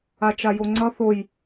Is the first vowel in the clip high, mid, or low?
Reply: low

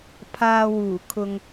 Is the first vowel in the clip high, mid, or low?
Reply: low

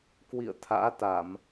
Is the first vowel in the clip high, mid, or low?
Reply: high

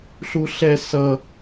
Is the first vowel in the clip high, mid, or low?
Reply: high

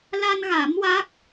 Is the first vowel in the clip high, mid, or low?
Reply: low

